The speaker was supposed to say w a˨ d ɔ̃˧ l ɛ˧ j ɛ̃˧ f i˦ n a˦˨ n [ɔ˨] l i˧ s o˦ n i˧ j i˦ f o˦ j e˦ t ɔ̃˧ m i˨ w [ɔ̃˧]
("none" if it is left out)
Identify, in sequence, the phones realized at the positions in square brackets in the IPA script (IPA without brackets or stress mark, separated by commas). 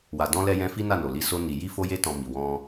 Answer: o˨, ɔ̃˧